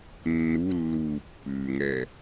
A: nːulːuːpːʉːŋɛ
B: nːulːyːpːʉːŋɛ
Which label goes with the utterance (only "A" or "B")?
A